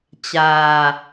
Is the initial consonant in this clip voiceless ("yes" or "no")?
yes